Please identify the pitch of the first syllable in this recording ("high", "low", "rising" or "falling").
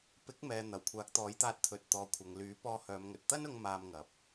rising